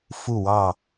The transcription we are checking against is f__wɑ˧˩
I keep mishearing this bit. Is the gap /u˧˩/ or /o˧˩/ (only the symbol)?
u˧˩